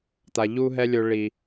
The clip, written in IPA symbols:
t̪ a˨ ʎ u˦ ɦ ɛ˦ lʲ o˧ ɭ i˨

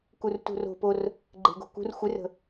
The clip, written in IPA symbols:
k u r t ṳ r o̤ p o r | ɡ͡ǃ e̤ ɡ o̤ k ṳ r xʷ ɪ r ə̤

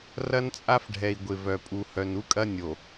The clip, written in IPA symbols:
r ɐ˦ n t͡sʼ a˦ f ɖʱ ɛ˨ i̯ ɡʷ ɪ˨ v œ˨ pʼ u˨ h œ˨ n u˦ kʼ ɐ˦ nʲ o˨

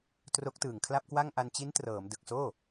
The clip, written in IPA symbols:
t r o˦˥ k̚ t ɯː˨˩ ŋ kʰ l a˥˩ p̚ k w a˥˩ ŋ ʔ a˧ n t͡ɕ i˦˥ n t r ɤː˩˦ m d ɯ˨˩ k̚ s oː˥˩

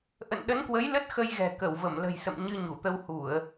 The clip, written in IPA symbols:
ʔ ə̰˧˨ n ɗ ə˨˦ n k w ə˨˦ j l ə˦˥ t̚ x ə˧ j ɣ ɛ̤˨˩ k ə˧˩ w v ə˧˩ m l ə̤˨˩ j s ə̰˧˨ m ɲ ɨ˧ ɲ u˧˩ t̪ ə˧ w h u˧˩˨ ə̯

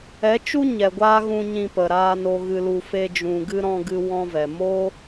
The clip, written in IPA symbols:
ɛ˨˦ t͡ʃ u˦ ɲ ɛ˨ ɡʷ aː˦ ɣ ũ˧ ɲ ĩ˧ p ə˨ ɾ aː˧ n o˨ ɣ ɨ˨ l u˨ f e˦ d͡ʒ ũ˧ ɡ ɨ˦ ɾ ɔ̃˧ ɡ ɨ˧ w ɔ̃˧ v ɛ˨ m o˦

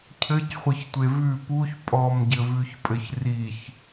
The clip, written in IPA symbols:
cʰ ɘ c χʷ ɘ ç tʷ e v ʉ p u ç pʼ ɔ m ɟ ɘ v ʉ ç pʼ ɘ ç r i ç

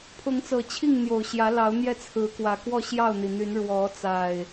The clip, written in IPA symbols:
pʰ ʊ˨˦ ŋ t͡s ɤ˨˩ t͡ɕʰ i˥˨ ŋ n̪ j o˨˩ ʊ̯ ɕ j ä˨˦ l ɑ˨˦ ʊ̯ n̪ j ɛ˥˨ t͡sʰ ɹ̩˨˦ k w ä˨˩ k w ɔ˥˨ ɕ j ɑ˥˨ ʊ̯ n̪ i˩ n̪ y˨˦ n ɻ w ɔ˨˦ t͡s a˨˩ ɪ̯

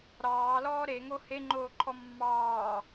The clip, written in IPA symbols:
ɾ ɑː l ɔː ɾ e ŋ o h e ŋ͡ǃ oː ǃʰ ɔ mː ɑː

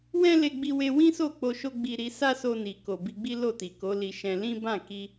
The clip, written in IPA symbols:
w ɛ̃˦ l e˧ ɡ͡b i˧ w e˧ w ĩ˦ s o˦˨ k͡p o˧ ʃ o˦ ɡ͡b i˧ ɾ i˧ s a˦ s o˧ n i˨ k o˨ b i˧ ɡ͡b i˦ l o˦˨ t i˨ k o˨˦ l i˧ ʃ ɛ̃˧ l ĩ˦ b ã˦˨ k i˧

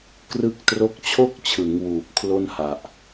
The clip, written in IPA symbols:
k r ɯ˦˥ k̚ t r o˦˥ k̚ t͡ɕʰ o˥˩ k̚ t͡ɕʰ ɯ˩˦ ŋ w uː˨˩ p̚ kʰ l o˥˩ n h a˨˩ ʔ

